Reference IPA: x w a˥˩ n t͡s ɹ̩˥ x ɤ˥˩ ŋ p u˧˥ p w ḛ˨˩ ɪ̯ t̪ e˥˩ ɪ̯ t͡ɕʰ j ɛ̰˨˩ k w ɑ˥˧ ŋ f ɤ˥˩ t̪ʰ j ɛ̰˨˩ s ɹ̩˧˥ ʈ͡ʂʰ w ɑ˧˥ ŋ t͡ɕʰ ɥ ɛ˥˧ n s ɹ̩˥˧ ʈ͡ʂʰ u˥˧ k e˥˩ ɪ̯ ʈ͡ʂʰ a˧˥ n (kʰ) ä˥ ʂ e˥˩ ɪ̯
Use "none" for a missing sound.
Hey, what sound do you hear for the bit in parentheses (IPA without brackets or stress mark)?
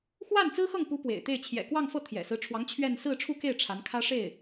kʰ